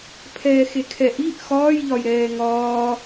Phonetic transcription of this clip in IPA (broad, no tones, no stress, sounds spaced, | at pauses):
pʰ ɛː x e kʰ ɛ ʔ i ʔ x ɒː j ʎ ɒ j ɾ ɛː ŋ ɒː